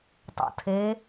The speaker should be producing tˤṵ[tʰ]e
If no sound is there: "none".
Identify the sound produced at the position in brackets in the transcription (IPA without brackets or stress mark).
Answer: tʰ